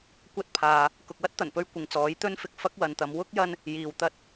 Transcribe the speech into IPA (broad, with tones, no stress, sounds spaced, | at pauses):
kʷ ɐ˥ t̚ pʰ aː˨ | k ʊ˨ k̚ w ɐ˥ t̚ t̪ ɐ˨˩ n p ɵ˧ ɥ kʷ ɪ˨ ŋ t͡s ɔː˨˥ j t̪ ɵ˥ n f ɪ˧ k̚ f ɐ˥ k̚ w ɐ˨˧ n t̪ ɐ˨˧ m w ʊ˥ k̚ j ɐ˧ n | j iː˨ w t̪ ɐ˥ t̚